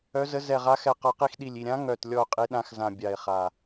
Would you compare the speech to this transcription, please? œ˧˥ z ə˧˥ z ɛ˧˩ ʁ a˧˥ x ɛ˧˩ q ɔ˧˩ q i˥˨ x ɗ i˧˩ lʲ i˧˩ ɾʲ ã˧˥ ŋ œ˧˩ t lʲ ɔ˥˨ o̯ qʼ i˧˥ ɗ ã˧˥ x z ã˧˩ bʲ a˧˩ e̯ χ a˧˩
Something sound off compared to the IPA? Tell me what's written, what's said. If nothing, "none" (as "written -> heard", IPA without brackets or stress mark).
none